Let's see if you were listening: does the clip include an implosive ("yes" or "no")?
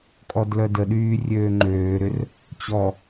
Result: yes